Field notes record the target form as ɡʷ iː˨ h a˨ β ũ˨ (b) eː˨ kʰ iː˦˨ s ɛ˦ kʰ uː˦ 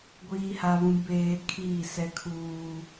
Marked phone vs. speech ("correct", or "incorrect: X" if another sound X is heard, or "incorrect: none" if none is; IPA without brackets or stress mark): correct